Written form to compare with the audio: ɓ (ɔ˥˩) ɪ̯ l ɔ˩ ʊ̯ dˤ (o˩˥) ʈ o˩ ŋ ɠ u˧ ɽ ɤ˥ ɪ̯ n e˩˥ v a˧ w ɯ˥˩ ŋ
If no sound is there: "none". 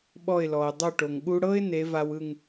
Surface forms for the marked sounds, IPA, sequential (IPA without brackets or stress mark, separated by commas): ɔ˥˩, o˥˩